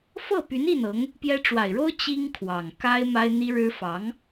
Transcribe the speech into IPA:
f ɤ˥˩ p y˧˥ n i˥˩ n ɤ˧˥ ŋ | p j ɛ˥ ʈ͡ʂ w a˨˩ ɪ̯ ɻ o˥ ʊ̯ t͡ɕ i˥ ŋ kʰ w ɑ˨˩ ŋ k a˥ ɪ̯ m a˥ ɪ̯ n̪ i˥ ɻ ɻ̩˥ f ɑ˧˥ ŋ

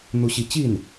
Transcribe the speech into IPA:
n̪ u˥˧ ɕ i˥˧ t͡ɕ i˥˩ n

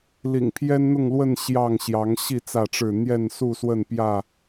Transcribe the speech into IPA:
l ḭ˨˩ ŋ pʰ j ɛ˦ n n̪ ʊ˥˨ ŋ l w ə˥˨ n ɕ j ɑ˥˨ ŋ ɕ j ɑ˨˦ ŋ ɕ i˥˨ t͡s ä˥˨ ʈ͡ʂ ɻ̩˥˨ n̪ j ɛ˥˨ n s u˥˨ s w ə˥˨ n p j ä˥˨

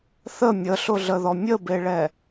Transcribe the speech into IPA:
θ ə mʲ ə ɬ ʊ ɮ ə ð ɔ mʲ ə b e ɭ ɛ

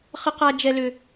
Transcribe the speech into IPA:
χ ə˦ q a˦ d͡ʒ ɛ˦ l ʏ˦

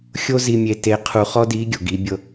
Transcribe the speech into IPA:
xʲ o˥ z i˧ mʲ e˧ t e˧˥ qʰ u˧ χ ɔ˥ d i˧˥ ɡʲ o˩ ɡ i˩˧ bʲ ɤ˧

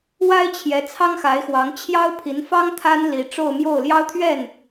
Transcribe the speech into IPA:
w a˥ ɪ̯ t͡ɕʰ j ɛ˧˥ t͡sʰ ɑ˥ ŋ x a˧˥ ɪ̯ x w ɑ˧˥ ŋ t͡ɕʰ j ɑ˥ ʊ̯ pʰ i˧˥ n f ɑ˥ ŋ t̪ʰ a˥ n l i˧˥ ʈ͡ʂ o˥˧ ʊ̯ m j o˥˩ ʊ̯ l j ɑ˥ ʊ̯ t̪ʰ ɥ ɛ˥˩ n

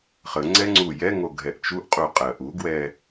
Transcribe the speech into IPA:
χ ə ŋ͡ǀ ɛ ŋ͡ǀ u j ɛ ŋ o ɡʱ ɛ ʔ t͡ʃ u ʔ qʼ u qʼ ɜ ʔ u ɡ w ɛ

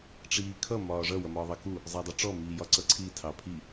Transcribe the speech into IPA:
ʈ͡ʂ iː kʰ ʌ m ɒː ʐ ʌ w ʌ m ɒː ðˤ ɑ k u | zˤ æ dˤ i ʈ͡ʂ ɔ m iː j ɒ ǀ ʌ ǀʰ i tʰ ɑ pʰ i

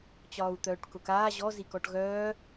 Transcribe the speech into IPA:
t͡ɕ ɒː u̯ t̪ œː ʈ k ʊ k aː ʑ ɔ z i k ɔ ʈ ɣ œː

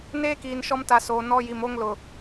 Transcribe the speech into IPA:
n eː˦ k iː˨ n ʃ ɔ˦ m t a˨ s oː˨ n ɔ˦ j i˨ m o˦ ŋ l ʊ˨

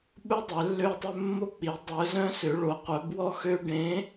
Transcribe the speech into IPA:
ɓ ɵ˦ dˤ ɛ˨˦ lː ø˦ tˤ ɵ˦ mː o˦ k͡p i˨˦ dˤ œ˨˦ z œ̃˦ s ø˨˦ ɭ o˨˦ qʷ œ˨˦ b w ɔ˦ x ø˦ ɖ ẽ˨˦

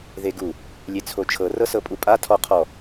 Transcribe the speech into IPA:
ð e ɡ u | lʲ e t͡sʰ o t͡ʃʰ ɤ r ɤ s ɤ pʼ u pʼ a tʰ ɔ qʰ ɔ

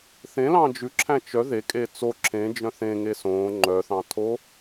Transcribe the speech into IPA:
θ ẽ l ɑ̃ d͡ʒ ʉ ǁʰ æ̃ t͡ʃ œ ð e kʼ e t͡s o ǁʰ ẽ d͡ʒ œ̃ θ ẽ ŋ e s õː ŋ͡ǃ œ θ ɑ̃ tʰ o

